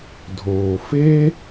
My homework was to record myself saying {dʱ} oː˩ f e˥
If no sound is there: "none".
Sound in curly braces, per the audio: dʱ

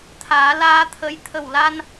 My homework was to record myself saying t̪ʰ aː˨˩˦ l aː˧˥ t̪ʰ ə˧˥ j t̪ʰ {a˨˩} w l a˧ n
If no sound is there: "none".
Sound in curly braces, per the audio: ə˨˩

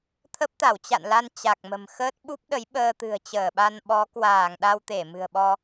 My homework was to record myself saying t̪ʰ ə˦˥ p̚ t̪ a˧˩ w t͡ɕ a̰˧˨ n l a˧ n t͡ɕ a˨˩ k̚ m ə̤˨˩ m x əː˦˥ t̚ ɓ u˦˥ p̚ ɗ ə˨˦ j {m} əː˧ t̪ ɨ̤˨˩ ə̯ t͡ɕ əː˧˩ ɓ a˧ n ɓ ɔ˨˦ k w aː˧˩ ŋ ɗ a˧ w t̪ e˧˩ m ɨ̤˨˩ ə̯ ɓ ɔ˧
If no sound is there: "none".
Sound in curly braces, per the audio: ɓ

